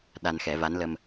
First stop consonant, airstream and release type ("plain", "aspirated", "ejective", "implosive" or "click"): implosive